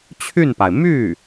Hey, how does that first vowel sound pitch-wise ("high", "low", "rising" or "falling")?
falling